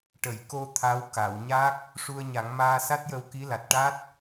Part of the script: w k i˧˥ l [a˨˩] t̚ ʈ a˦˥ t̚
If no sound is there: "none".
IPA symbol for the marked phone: a˨˩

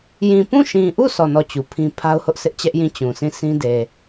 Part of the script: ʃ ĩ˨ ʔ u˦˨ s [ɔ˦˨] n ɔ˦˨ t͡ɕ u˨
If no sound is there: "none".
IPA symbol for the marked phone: ɔ˦˨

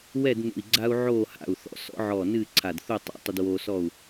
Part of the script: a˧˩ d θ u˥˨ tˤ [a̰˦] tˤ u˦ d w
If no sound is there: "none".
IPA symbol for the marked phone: a̰˦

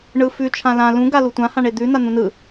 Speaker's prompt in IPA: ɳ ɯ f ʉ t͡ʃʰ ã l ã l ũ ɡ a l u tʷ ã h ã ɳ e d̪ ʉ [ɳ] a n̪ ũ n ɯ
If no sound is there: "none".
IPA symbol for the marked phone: n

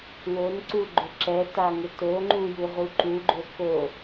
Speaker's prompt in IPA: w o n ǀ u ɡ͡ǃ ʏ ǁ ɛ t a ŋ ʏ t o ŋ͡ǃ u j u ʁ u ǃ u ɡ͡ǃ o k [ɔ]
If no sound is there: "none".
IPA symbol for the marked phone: o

